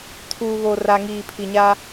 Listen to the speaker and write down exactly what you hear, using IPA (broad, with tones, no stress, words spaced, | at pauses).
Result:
tʰuː˨βo˨ ra˨ŋiː˨pʰi˨ɲa˦